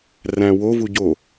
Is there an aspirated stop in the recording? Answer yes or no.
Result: no